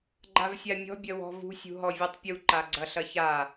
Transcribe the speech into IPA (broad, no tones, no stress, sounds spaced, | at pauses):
ɡ͡ǃ a v sʲ a mʲ ɔ̤ bʲ ɐ w ɔ̤ v ṳ sʲ ṳ ɦ ɔ vʲ u tˤ pʲ u ǃ a ɡ͡ǀ ɐ ɬ ɐ ç a